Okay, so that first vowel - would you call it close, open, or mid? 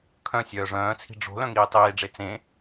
mid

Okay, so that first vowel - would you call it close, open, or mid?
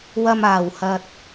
open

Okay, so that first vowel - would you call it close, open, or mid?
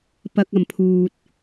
open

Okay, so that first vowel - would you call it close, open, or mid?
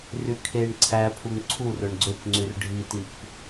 close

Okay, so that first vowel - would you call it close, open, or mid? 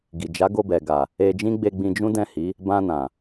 close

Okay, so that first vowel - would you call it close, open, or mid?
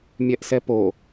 mid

